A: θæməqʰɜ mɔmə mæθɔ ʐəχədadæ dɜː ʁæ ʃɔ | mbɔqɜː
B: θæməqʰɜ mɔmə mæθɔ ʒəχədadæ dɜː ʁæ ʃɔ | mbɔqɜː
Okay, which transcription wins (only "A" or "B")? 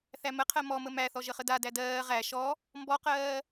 B